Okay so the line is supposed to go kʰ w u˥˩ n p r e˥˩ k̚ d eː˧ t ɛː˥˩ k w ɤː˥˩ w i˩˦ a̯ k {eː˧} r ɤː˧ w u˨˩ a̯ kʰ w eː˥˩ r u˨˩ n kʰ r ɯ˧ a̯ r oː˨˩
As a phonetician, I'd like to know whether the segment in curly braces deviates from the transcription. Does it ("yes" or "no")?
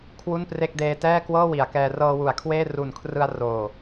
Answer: yes